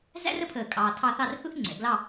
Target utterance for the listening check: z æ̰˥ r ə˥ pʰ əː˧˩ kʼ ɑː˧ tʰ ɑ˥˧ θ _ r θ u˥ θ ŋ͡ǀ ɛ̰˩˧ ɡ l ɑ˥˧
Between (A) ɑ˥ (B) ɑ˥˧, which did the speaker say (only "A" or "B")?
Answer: B